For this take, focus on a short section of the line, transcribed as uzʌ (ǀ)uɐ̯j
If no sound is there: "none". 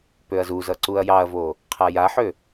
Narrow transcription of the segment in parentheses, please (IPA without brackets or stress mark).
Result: ǀ